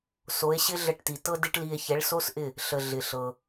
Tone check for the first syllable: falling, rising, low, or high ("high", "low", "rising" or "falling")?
rising